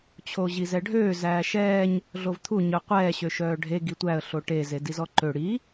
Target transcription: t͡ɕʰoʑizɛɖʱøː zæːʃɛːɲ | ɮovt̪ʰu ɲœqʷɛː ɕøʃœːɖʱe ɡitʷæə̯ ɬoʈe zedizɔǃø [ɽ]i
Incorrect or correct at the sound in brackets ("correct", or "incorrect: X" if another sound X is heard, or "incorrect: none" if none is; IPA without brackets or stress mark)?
correct